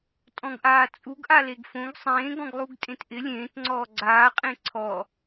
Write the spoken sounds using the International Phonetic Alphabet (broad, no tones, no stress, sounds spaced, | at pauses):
tʼ ɔ̃ ɡ ʔ aː t͡sʼ u ɡ ʔ a l e ɡ f õ ɡ sˤ ẽː ɡ ɔ̃ ɡ lˠ u ɡ tʼ ẽ t ʔ ɪ lʲ ẽː t ŋ͡ǀ ɔː ɡ͡ǀ aː qʼ ẽ ǀʰ ɔ